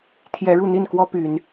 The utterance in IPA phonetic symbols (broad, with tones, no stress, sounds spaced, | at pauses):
t̪ʰ j ɛ˨˦ ɻ u˥˨ n̪ i˥˨ n k w ɔ˦ p y˨˦ n